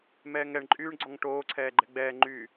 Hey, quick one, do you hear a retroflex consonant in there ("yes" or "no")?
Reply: yes